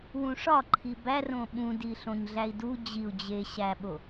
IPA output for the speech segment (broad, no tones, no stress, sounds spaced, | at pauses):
w ũ ʂ ɒ ǃʰ i b æ r õ ɓ ũ d i ɬ õ ɲ ɮ æ i̯ d u d͡ʑ i u̯ d͡ʑ e ɕ æ ɓ o